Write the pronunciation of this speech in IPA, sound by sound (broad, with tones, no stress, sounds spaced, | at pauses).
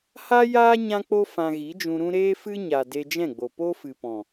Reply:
h a˦ j aː˦ ɲ ã˦ k͡p o˦ f ã˧ ɣ i˨˦ d͡ʒ ũ˧ ɾ ũ˦ ɾ eː˦ f ɨ˦ ɲ a˨ d e˧ d͡ʒ ɛ̃˦˨ ɡ͡b o˨ p o˦ f ɨ˨ p ɔ̃˨